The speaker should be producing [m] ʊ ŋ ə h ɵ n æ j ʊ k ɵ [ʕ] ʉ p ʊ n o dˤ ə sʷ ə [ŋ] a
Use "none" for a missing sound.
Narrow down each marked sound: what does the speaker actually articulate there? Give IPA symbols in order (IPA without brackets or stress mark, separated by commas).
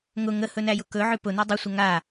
ŋ, ʕ, ŋ